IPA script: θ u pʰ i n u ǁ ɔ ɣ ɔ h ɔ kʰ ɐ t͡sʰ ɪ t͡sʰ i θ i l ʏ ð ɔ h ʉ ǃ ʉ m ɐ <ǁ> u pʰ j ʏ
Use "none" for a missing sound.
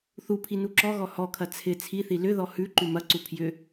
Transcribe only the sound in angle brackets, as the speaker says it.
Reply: ǀ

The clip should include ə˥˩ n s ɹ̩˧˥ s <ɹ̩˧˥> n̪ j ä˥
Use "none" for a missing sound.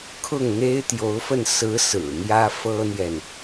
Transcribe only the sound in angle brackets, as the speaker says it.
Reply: ɹ̩˨˩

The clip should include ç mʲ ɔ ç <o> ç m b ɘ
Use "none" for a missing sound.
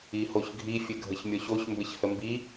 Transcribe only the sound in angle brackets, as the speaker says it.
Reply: o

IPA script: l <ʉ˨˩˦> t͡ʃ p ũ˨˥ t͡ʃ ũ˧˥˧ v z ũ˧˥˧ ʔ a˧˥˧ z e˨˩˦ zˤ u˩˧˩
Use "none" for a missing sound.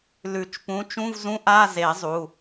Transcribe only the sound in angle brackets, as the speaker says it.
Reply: ʉ˨˩˦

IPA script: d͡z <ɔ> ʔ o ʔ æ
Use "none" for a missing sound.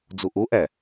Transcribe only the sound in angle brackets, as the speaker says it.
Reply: o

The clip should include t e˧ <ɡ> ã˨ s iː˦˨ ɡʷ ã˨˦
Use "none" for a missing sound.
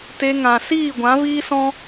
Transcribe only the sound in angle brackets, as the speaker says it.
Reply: ŋ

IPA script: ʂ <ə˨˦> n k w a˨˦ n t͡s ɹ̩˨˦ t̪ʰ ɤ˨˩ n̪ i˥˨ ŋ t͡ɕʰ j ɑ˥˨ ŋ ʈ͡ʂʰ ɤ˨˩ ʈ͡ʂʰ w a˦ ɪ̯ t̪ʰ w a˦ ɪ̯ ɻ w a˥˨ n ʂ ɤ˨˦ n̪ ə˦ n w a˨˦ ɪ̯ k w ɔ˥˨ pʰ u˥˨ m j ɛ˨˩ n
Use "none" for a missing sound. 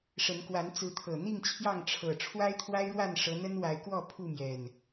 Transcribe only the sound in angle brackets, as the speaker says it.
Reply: ə˨˦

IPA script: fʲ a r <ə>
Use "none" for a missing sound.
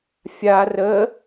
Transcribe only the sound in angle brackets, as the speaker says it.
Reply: ə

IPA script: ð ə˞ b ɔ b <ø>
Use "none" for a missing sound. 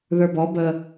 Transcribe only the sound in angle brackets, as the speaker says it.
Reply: ə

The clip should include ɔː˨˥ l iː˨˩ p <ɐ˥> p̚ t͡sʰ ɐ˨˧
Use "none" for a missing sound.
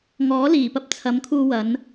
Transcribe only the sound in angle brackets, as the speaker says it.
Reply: ɐ˥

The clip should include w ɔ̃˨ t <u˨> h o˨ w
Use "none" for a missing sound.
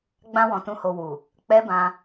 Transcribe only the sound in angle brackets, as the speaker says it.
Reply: ũ˨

